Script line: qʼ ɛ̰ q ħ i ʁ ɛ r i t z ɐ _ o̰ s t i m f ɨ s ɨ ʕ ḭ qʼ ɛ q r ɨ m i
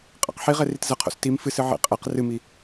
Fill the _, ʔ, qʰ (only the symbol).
qʰ